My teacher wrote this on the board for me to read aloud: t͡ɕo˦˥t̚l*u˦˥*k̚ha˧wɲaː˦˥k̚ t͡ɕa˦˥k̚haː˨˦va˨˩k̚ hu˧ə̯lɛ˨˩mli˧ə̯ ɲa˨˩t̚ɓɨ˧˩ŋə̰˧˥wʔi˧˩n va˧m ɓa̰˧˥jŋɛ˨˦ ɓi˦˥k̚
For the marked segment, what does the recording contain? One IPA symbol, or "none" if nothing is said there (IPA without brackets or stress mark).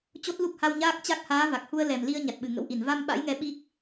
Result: u˦˥